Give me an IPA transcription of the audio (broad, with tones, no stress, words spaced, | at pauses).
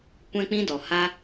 kʷɛ̃˦k͡pĩ˦dɔ˨ ha˧